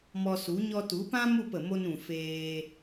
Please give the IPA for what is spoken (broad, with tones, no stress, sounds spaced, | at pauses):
m ɔ˧ s u˨˦ ɲ ɔ˧ t u˨˦ p ã˦ m u˦˨ p ə˨ m o˧ n ũ˨ f eː˧